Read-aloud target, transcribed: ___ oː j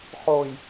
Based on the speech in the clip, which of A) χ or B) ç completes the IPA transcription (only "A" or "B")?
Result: A